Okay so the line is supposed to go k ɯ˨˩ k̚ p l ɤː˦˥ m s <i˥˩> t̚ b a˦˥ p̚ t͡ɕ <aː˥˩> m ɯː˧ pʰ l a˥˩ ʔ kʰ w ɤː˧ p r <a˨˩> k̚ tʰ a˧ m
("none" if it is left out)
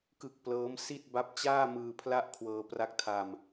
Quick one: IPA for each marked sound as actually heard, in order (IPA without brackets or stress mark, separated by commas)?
i˥˩, aː˥˩, a˦˥